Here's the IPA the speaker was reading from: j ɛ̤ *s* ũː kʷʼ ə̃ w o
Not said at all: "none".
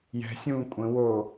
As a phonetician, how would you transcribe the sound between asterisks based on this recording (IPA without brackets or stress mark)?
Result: sʲ